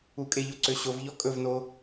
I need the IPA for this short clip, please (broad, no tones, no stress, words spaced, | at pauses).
ukʼeʎo ǀøɕovʎɔ kʼɵvno